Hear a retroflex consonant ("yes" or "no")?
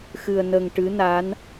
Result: yes